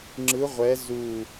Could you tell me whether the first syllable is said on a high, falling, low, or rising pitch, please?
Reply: rising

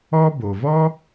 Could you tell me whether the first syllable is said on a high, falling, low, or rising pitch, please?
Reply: high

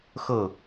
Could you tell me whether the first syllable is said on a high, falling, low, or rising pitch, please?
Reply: falling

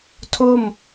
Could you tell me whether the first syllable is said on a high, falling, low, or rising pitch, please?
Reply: falling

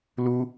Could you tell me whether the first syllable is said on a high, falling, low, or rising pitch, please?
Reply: high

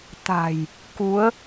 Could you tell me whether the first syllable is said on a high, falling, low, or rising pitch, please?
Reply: low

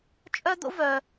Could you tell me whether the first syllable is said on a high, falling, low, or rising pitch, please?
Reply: high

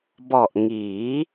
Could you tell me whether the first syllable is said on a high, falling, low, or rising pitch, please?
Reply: low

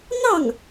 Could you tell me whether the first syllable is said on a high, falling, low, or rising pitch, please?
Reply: falling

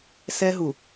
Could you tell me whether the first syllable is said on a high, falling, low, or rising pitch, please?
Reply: high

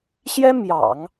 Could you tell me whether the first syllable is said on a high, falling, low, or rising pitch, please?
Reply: high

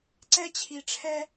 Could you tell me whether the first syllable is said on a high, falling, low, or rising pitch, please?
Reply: high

